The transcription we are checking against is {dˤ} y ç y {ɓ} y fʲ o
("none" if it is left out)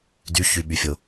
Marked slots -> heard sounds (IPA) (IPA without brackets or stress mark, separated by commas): d, ɓ